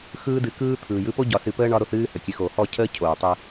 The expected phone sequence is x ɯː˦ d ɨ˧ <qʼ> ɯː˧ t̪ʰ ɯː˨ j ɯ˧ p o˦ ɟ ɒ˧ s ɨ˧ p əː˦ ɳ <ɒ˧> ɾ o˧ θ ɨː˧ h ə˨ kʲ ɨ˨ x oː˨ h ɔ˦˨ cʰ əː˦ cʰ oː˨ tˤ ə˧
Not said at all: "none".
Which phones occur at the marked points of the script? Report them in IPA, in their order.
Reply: k, ɒ˧

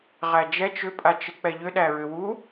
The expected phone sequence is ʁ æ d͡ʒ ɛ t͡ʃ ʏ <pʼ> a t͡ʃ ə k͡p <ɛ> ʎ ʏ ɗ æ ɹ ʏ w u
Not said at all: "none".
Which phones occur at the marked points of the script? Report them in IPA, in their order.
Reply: pʼ, ɛ

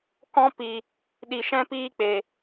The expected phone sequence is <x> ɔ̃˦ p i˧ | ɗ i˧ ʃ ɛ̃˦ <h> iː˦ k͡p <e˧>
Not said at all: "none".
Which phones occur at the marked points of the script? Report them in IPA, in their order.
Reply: k, p, e˧

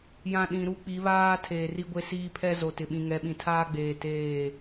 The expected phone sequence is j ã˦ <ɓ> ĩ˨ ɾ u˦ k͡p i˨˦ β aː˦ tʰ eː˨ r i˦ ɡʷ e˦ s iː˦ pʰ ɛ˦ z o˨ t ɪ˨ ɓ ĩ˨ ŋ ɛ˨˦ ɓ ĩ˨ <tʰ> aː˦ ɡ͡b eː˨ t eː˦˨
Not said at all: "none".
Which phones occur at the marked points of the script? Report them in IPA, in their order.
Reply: ɗ, tʰ

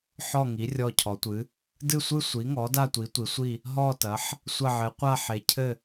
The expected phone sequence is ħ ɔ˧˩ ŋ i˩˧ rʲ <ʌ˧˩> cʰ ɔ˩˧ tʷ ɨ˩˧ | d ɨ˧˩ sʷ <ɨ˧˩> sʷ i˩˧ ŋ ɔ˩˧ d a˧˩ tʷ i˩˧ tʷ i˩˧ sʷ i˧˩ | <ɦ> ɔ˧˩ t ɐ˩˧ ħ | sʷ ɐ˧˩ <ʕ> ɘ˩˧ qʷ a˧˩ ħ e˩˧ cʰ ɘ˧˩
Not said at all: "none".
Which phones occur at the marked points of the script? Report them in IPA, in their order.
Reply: ɔ˧˩, ɨ˧˩, ɦ, ʕ

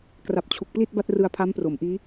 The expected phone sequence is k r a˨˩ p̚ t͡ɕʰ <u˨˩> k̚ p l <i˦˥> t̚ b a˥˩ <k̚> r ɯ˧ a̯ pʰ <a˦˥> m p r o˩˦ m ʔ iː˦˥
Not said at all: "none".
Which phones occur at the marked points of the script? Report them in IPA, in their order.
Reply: u˨˩, i˥˩, t̚, a˦˥

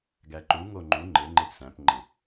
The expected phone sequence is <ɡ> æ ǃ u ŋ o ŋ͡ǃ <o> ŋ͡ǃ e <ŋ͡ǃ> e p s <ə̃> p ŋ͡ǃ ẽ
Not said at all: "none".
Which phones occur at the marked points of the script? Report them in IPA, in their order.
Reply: ɡ, u, ŋ͡ǃ, æ̃

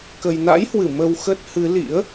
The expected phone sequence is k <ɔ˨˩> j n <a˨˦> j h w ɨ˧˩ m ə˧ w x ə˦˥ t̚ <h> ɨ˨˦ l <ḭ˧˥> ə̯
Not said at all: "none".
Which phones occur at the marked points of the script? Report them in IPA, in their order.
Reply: ə˨˩, a̰˧˥, h, ḭ˧˥

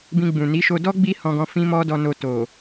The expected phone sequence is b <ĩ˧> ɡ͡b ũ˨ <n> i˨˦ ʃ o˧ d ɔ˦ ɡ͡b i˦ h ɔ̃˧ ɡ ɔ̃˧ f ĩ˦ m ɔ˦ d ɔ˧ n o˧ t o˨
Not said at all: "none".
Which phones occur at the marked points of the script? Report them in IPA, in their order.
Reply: ĩ˧, n

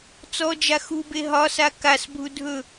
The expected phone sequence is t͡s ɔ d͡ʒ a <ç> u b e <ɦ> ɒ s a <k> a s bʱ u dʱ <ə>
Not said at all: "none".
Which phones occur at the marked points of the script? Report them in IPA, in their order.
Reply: x, ɦ, k, ɵ

